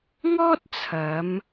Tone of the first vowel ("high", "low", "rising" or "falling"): high